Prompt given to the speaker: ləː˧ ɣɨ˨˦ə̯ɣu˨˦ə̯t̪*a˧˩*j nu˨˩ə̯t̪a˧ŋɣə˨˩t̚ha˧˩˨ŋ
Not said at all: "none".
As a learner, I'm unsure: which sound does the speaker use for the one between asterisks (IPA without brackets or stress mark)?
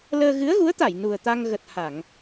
a˧˩